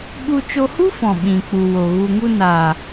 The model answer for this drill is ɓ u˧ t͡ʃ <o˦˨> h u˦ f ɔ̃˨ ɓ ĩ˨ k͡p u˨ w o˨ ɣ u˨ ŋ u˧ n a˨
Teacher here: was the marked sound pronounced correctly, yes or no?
no